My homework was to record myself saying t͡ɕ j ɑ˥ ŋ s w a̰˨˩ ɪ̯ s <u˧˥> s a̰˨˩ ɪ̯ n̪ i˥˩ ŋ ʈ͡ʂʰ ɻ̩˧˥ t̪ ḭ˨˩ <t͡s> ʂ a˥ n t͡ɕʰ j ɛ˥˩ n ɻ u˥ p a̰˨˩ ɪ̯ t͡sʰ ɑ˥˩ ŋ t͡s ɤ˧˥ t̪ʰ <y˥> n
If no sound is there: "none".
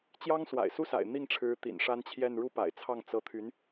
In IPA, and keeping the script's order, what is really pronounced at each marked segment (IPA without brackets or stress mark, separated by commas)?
u˥, n, y˧˥